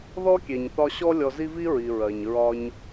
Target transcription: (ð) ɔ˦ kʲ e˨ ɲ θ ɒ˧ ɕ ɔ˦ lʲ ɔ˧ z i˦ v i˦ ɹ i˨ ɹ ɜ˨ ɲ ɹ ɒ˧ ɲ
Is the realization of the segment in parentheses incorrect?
no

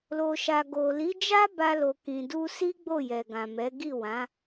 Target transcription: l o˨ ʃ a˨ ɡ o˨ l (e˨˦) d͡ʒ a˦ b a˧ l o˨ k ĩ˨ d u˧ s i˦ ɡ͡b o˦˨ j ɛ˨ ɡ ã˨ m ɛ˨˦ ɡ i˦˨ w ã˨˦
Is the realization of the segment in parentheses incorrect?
yes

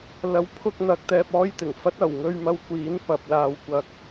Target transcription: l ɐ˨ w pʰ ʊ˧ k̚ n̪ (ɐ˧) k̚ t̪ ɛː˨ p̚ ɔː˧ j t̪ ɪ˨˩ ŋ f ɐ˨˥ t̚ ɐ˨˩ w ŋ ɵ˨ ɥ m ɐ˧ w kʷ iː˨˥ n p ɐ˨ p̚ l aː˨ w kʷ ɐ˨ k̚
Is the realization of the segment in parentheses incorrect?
yes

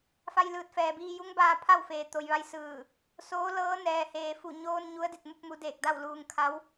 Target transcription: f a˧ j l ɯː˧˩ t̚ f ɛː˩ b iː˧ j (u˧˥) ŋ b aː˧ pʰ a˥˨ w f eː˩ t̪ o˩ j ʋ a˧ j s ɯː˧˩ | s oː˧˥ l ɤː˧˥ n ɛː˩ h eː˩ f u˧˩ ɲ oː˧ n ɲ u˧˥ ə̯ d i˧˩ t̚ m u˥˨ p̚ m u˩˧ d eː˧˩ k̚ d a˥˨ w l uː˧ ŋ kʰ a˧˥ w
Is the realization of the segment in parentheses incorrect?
no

